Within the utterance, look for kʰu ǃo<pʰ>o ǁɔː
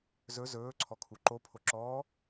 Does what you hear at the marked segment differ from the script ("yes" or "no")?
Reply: no